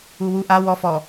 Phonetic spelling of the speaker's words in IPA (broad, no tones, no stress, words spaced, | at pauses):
uwu ʔa wɔ fɔ